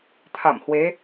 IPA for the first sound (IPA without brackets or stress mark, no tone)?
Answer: t̪ʰ